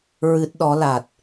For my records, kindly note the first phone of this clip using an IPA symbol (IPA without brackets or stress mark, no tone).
ɹ